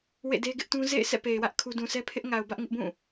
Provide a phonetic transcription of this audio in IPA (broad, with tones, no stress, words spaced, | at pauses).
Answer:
wḛ˦˨de˦ɡɪ˦ʔtũ˦ zḛ˦˨ɪ̯ sʰɛ̰˦˨pe˨ɪ̯wä˦ʔ kʰu˦ dũ˨sʰɛ˦pʰɪ˦ʔ ŋa˨ʊ̯bä˦ʔŋɪ˦ʔbũ˦˨